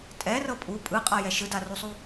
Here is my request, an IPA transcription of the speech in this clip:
tʼɛrɤ pʼu pʼɯqʼajɛ ʃɯdarusˤu

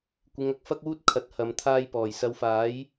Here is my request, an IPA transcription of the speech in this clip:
kʷɪ˨˧ŋ ɐ˨˥k̚fɐ˥k̚wuː˥t̚ kʰɐ˨˥t̚hɐ˨m t̪ʰaː˧jpɔː˨˩jsɐ˨˧wfaː˨˥j

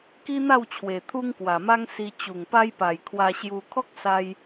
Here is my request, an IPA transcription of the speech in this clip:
ki˦n̪a˥˧wt͡ɕʰwe˨˩ t̪ʰu˦ŋkwa˨˩ma˦ŋ si˧ t͡ɕu˨˩ŋpa˧jpa˨˩j kʰwa˧ɕju˧ kʰɔ˦k̚sa˧j

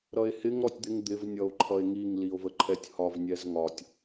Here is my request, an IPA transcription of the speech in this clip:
ɾʌe̯hɪŋ ɾɔtʲd̪ɪŋ d̪ɪv nʲʌo̯ǃʰʌe̯ŋiŋ lio̯vəǃʰɛtʲhɒv nʲɛzŋɒtʲ

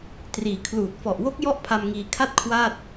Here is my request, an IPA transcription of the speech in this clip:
triː˩˦kʰluː˨˩t̚ fɔ˨˩ʔwo˦˥k̚ jɔ˥˩ʔpʰa˧mŋiː˧ kʰa˥˩t̚kʰwaː˥˩t̚

